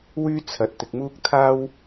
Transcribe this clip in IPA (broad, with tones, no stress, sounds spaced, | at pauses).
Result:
w yː˥ t͡sʰ ɐ˨ t̚ t̪ ɪ˧ k̚ m uː˥ k̚ t̪ʰ aː˥ w